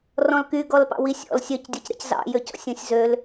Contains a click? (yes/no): no